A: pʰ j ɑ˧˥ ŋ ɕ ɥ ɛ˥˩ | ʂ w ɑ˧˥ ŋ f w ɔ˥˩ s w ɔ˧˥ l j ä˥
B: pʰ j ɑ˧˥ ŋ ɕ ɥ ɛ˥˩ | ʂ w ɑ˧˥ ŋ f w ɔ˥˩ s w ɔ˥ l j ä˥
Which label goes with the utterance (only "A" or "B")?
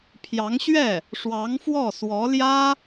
A